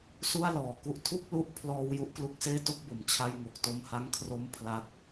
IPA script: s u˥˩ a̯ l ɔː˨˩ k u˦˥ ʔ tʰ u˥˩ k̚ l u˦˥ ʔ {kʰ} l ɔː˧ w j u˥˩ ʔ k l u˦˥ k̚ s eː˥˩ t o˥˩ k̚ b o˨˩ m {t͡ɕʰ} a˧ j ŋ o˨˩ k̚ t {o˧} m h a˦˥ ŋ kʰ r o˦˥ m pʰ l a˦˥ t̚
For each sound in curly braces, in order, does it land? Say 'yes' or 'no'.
no, yes, yes

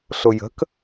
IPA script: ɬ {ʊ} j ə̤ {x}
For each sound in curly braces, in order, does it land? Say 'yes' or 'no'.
yes, no

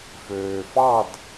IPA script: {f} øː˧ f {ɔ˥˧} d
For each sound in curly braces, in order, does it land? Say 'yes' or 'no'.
yes, no

